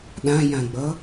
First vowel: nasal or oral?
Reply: nasal